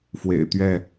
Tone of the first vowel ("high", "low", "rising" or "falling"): low